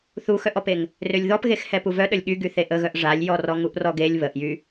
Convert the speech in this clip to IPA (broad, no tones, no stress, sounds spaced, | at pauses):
θ u x œ ʔ ɔ p e ŋ | r ø lʲ ð ɔ p ɣ e x h ɛ p u v œ ɗ ə lʲ ɠ y ɡ y θ e ʔ ə ɣ œ ʔ ʐ a lʲ j ɔ r ɔ ŋ u ʔ r ɔ ɡ e lʲ β ə ʔ j y